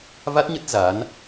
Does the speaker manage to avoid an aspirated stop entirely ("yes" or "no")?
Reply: yes